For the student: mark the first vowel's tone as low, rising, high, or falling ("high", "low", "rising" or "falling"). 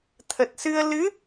low